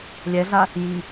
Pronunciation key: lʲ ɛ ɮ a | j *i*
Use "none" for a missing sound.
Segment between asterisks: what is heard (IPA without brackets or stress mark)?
i